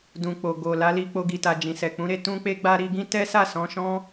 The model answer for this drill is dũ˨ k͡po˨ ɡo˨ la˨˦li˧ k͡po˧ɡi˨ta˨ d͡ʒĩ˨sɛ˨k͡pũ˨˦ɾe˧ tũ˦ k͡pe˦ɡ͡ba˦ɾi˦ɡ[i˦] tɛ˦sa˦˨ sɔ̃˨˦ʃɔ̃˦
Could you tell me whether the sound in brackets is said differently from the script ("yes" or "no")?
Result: yes